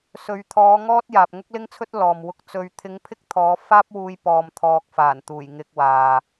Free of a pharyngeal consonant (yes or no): yes